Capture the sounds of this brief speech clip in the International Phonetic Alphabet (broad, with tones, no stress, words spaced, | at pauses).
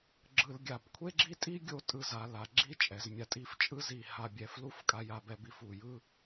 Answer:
ɡ͡ǁɯ˧lɡʲa˧˩b kʷʰe˥ɡ͡ǁi˥tʼi˥ ɡʲo˥tʼɯ˧ za˩˧ la˩˧ ɡ͡ǁi˥ t͡ʃʼɛ˩˧zmʲa˧tʼi˥˧f t͡ʃʼɯ˥zi˧˩ ha˧bʲɛ˧˩flu˥f kʼa˧ja˧b ɛ˧bi˥˧fu˧˩jɯ˥